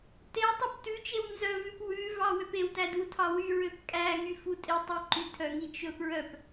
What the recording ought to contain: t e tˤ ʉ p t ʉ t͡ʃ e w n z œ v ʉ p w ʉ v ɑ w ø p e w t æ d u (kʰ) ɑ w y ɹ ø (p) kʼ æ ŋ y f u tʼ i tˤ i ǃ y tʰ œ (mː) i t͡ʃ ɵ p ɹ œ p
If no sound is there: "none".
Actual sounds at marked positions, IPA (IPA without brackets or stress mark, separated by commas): tʰ, p, ŋ